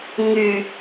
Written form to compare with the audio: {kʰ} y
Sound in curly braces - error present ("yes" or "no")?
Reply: yes